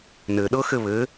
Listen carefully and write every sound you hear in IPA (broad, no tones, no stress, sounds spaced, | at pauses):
n ɘ ɗ ɤ x ɘ β ɘ